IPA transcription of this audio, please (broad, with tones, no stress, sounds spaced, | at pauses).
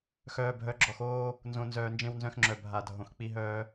x œː˨ bʱ œ˨˦ ɡ͡ǁ ɔ˨ x oː˦ | n z õ˨ n z œː˨ n d͡ʒ ẽ˦ w n z œ̃˦ x ŋ͡ǁ œ˨ bʱ a˨ dʱ õ˨ x k͡p i˦ ɦ œː˦